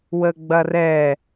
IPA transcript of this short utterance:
w ə ɡ͡b ɐ r ɛ

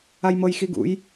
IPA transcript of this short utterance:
a j m ɤ j x i ɡ ṵ j

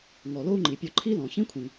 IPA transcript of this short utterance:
ŋ ɔ˩ l o˥ u̯ ŋ͡ǃ i˩ pʲ ɔ˧ ǃʰ i˥ l ɔ̃˩ ç ĩ˥ kʷʰ ĩ˩

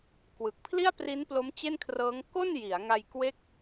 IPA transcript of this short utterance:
k w ɯ˨˩ k̚ pʰ l i˥˩ a̯ p r i˦˥ n p l o˦˥ m t͡ɕ e˥˩ n kʰ r ɤː˦˥ ŋ k o˥˩ n j i˩˦ a̯ ŋ a˧ j k w e˥˩ k̚

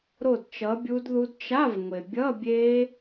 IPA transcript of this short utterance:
ɾ o˥˨ d t͡ʃ ʌ˨˥ bʲ u˦˥ d ð u˦˥ d t͡ʃ a˧˥˧ v ŋʷ e˩ bʲ ʌ˧˥˧ bʲ e˦˥

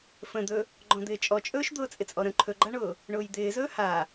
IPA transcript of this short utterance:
f ə̃ d̪ ɵ | ɡ͡ǃ ɔ̃ d̪ ɪː t͡ʃʼ ɔ t͡ʃʼ ɵː ʃ d̪ ʊː t͡sʼ ɪ t͡sʼ ɔ ɾ ə̃ ǃʰ ɵ ɡ͡ǃ a ɳ ʊː | ɳ ʊː j d̪ ɪː z ɵː h a

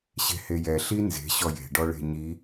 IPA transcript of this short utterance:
ɕ e̤ h e j ɛ ɬ i n z e̤ ɕ ɔ j e̤ ɖ ɔ ɭ e̤ ɲ i

